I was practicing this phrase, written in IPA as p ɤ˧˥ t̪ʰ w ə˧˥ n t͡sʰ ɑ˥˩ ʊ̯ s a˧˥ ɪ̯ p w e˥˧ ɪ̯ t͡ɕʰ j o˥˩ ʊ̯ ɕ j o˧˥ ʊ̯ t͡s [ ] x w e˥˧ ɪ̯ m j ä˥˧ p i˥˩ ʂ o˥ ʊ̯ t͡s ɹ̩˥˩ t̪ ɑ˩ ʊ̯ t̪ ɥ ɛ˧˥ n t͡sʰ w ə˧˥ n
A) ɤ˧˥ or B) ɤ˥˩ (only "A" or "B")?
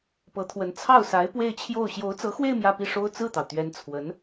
A